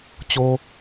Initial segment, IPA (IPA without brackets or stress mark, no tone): t͡ɕ